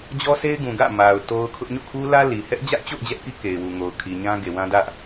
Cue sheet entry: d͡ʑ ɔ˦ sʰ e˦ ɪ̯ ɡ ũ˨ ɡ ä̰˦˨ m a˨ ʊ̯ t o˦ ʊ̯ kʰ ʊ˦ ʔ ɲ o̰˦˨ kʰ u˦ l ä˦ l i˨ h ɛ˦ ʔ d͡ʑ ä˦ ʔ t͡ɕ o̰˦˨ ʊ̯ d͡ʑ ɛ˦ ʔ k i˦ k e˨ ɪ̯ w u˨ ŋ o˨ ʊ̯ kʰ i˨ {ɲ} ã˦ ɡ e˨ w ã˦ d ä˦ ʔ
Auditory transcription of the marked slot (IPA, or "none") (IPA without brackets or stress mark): ɲ